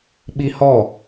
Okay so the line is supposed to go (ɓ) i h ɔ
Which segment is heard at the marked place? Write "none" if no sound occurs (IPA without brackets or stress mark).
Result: ɓ